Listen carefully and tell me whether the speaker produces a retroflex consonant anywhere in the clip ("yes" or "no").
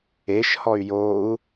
no